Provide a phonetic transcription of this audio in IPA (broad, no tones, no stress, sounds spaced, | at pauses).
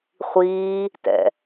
χʷ iː | t ɛ̰